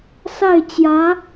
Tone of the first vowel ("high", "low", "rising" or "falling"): falling